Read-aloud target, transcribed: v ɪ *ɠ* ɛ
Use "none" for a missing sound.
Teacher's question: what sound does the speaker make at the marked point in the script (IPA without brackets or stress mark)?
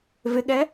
ɠ